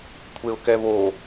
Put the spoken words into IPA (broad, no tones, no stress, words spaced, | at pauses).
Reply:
kʷʰeʊ̯kɛβo